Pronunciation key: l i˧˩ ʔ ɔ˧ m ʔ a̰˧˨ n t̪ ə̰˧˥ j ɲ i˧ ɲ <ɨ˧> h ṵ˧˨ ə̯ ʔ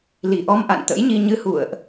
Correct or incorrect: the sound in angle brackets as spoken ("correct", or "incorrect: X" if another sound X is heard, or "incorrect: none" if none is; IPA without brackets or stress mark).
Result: correct